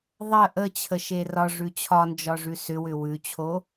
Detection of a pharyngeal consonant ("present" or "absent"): absent